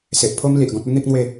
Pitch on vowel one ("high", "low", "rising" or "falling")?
low